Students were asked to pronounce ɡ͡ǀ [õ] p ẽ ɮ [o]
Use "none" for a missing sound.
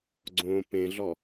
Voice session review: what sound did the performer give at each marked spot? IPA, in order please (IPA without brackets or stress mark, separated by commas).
õ, ɔ